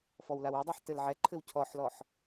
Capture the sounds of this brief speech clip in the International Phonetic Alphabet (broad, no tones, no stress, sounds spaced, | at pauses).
f ɔ w l a w œ dˤ ɛ ħ t ɘ l ʕ ɛ ǃʰ ɘ w cʰ ɔ ħ l ɔ ħ